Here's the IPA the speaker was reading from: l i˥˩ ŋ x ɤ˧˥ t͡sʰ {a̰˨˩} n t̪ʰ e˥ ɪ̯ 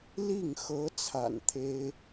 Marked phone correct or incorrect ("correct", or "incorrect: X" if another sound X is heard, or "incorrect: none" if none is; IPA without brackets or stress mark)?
correct